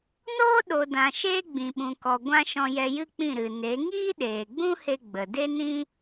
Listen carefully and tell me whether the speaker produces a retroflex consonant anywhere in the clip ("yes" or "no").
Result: no